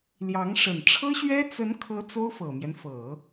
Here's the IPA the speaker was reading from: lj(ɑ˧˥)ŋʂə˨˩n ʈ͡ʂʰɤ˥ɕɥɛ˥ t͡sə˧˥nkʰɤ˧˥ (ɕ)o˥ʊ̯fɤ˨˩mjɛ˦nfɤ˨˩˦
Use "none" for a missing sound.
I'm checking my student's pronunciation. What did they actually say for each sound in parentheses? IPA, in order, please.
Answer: ɑ˧˥, t͡s

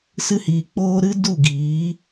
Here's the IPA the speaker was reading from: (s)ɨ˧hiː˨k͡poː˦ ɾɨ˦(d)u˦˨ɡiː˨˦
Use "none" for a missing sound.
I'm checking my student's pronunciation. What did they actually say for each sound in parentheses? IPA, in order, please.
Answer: s, d

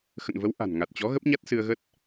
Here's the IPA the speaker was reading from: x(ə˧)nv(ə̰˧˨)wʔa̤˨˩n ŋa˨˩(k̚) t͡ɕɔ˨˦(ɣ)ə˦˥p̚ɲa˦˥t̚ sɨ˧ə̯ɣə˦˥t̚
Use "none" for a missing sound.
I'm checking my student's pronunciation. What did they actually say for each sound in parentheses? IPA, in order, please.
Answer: ə̰˧˨, ə˨˦, t̚, ɣ

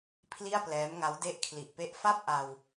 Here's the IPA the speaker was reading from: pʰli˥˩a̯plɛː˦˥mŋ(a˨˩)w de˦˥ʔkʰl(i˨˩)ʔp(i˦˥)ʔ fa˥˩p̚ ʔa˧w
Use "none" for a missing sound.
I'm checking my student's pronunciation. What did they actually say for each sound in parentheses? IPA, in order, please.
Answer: a˦˥, i˨˩, e˦˥

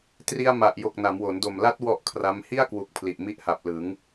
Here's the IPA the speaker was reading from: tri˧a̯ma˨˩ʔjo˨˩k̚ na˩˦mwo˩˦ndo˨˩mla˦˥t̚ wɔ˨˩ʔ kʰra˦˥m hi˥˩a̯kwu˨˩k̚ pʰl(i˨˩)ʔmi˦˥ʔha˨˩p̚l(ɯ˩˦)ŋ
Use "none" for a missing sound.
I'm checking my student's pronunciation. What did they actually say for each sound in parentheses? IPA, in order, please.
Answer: i˨˩, ɯ˩˦

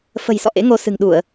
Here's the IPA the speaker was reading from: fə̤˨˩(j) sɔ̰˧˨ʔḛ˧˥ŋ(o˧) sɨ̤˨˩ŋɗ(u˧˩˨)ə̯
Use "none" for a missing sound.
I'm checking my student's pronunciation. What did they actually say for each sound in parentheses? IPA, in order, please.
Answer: j, o˧, u˧˩˨

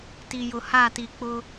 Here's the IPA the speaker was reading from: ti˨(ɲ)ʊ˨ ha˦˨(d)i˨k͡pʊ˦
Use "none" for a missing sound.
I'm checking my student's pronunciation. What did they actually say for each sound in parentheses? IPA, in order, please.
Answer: j, t

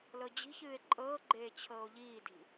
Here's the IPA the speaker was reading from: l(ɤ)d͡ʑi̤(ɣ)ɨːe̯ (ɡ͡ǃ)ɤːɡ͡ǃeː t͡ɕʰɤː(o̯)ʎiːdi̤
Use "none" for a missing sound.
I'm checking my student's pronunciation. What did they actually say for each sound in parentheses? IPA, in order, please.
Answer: ɤ, ç, ǃʼ, o̯

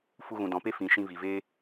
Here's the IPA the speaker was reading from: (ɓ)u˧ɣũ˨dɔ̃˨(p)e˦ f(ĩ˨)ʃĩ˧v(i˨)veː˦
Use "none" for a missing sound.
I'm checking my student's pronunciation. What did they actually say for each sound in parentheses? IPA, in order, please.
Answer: f, p, ĩ˨, i˨

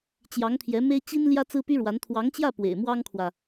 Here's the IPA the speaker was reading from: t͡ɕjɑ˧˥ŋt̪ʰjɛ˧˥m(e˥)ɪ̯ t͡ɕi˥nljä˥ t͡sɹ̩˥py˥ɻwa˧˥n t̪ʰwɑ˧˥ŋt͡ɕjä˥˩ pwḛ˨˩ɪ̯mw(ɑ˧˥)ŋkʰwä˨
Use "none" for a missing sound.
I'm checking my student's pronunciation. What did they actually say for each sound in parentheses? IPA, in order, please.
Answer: e˥, ɑ˥

